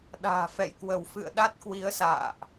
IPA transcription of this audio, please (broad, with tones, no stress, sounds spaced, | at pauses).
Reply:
ɗ a̤ː˨˩ f ɛ̰˧˨ j k w ə˧˩ w f ɨ̰˧˨ ə̯ ɗ a˦˥ t̚ k w i˨˦ ə̯ s a̰ː˧˨ ʔ